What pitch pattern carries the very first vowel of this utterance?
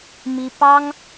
high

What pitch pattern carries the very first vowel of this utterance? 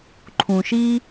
low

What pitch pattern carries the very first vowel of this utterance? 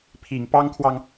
low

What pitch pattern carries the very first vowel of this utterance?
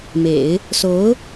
low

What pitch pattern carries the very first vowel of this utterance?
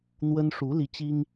high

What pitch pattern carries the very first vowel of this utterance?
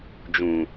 low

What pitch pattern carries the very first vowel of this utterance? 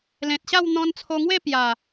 low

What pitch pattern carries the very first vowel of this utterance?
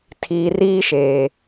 low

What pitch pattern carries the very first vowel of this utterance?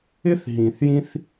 high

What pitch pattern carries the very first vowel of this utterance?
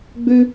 high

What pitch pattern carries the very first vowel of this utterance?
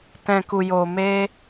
low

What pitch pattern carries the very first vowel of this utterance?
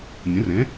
rising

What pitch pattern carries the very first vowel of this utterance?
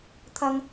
high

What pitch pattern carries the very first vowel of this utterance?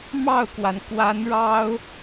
falling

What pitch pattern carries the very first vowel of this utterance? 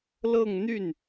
falling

